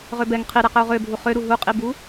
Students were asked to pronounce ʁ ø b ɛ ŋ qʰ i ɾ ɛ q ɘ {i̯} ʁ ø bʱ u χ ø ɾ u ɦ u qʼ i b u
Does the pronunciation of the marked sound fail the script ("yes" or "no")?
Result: yes